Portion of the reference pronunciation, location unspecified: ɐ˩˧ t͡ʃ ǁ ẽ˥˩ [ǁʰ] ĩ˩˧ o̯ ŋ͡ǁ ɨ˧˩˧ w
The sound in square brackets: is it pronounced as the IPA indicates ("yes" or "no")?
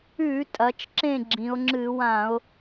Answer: no